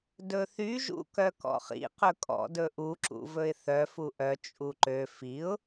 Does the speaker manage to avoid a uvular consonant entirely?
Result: no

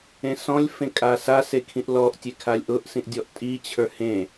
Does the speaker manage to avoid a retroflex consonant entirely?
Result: yes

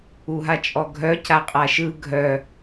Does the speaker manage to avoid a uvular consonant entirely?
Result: no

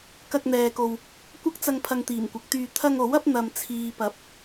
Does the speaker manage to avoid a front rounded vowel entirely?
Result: no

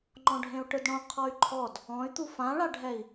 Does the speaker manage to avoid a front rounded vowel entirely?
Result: no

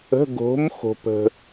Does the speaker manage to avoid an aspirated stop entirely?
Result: yes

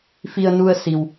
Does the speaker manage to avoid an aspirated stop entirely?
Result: yes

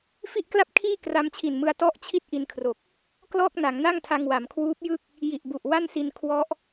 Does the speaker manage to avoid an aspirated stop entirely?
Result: no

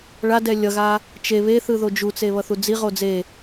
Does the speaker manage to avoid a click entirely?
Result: yes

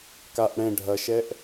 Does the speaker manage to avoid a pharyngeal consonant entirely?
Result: yes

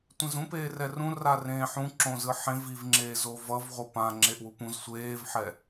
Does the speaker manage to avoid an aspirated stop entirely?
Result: yes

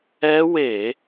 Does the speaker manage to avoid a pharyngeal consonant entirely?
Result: yes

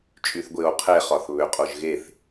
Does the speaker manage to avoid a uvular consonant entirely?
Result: no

